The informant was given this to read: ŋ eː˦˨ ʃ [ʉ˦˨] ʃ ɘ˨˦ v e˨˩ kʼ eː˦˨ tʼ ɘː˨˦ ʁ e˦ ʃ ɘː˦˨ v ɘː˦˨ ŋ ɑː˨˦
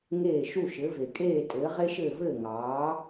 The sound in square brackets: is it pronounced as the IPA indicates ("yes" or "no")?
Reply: no